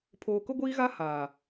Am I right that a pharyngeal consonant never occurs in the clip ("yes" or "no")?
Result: yes